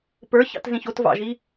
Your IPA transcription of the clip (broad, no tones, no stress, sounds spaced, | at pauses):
p ə˞ ç ɑ̰ t z ĩ ç o t v ɑ̰ ʒ i